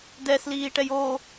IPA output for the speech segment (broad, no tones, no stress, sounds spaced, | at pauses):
d ɛ s l iː ʈ ɛ j o